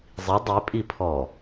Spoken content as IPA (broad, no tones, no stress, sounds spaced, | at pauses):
zˤ i dˤ e pʼ i pʰ ɔ